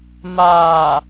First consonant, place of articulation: labial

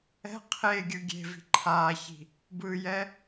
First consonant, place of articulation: uvular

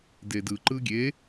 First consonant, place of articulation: alveolar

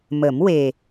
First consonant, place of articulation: labial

